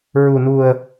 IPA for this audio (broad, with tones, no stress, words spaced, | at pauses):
ɹu˨˩nu˨˩ə̯